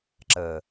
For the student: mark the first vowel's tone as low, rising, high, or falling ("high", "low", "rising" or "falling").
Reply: low